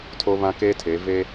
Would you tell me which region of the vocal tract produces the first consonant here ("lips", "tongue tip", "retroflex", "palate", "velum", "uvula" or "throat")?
tongue tip